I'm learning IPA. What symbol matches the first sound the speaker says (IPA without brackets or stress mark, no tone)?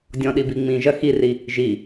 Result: dʲ